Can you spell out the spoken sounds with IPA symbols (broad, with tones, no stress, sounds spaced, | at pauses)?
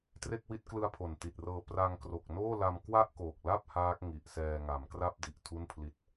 t r e˥˩ k̚ w i˦˥ t̚ k l ɯ˦˥ a̯ pʰ o˨˩ n t i˨˩ t̚ r ɤː˧ p r a˧ ŋ k r o˨˩ k̚ n oː˥˩ l a˧ m k w a˥˩ ʔ k o˨˩ k̚ l a˥˩ p̚ h aː˦˥ k̚ ŋ i˨˩ ʔ s ɛː˧ ŋ a˩˦ m k r a˥˩ p̚ d i˨˩ ʔ tʰ u˥˩ n pʰ l i˦˥ t̚